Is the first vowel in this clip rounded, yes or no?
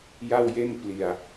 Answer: no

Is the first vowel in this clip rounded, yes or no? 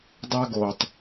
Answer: no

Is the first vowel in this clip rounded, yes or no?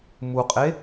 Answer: yes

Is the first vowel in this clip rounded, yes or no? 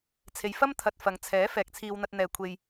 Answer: no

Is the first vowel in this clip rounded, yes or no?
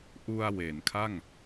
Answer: yes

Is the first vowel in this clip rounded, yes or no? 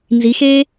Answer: no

